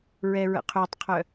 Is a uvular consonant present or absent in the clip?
present